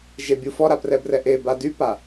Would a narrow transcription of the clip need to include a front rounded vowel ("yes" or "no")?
yes